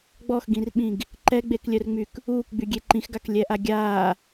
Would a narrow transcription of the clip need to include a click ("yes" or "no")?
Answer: yes